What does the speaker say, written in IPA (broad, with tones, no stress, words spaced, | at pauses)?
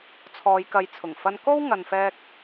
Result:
t͡sʰɔː˨˧jkɐ˨˧jt͡sʰʊ˨˩ŋ fɐ˧nko˥w ŋɐ˨nfɛː˧k̚